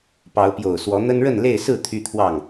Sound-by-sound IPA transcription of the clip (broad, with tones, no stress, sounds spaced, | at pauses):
p ɑ˨˦ ʊ̯ p j o˨˩ ʊ̯ s w ɔ˨˦ n̪ ə˦ n ɻ ə˥˨ n l e˥˨ ɪ̯ s ɹ̩˥˨ t̪ʰ y˦ t̪ʰ w ɑ˥˨ ŋ